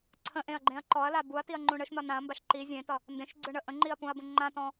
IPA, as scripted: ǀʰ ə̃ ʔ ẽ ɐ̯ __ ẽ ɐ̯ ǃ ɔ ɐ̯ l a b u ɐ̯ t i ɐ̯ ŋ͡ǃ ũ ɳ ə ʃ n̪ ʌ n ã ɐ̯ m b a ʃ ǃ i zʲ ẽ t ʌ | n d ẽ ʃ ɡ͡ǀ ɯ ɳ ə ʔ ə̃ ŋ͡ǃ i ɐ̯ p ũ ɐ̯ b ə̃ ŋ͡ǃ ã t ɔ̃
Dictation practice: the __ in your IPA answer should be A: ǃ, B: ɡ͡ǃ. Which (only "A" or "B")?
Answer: B